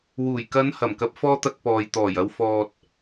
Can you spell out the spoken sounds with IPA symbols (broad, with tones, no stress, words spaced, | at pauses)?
wuː˨˩jkɐ˨˧n hɐ˨˩mkɐ˨p̚fɔː˧ t̪ɐ˧k̚pɔː˨jt̪ɔː˨˩j ɐ˨wfɔː˨t̚